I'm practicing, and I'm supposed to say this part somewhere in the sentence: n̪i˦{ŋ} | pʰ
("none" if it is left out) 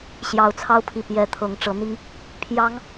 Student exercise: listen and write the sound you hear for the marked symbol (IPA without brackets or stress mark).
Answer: ŋ